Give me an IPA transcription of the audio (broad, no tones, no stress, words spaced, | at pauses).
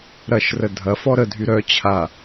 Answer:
ɾɐʃrə dʱɐ fɔɾədʱy ɾœ t͡ɕʰa